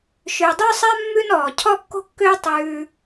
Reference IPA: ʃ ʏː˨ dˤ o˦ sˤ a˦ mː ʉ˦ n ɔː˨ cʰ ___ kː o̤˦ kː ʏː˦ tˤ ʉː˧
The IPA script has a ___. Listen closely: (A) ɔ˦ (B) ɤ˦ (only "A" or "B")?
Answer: A